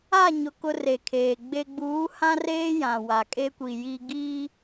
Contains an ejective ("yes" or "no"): yes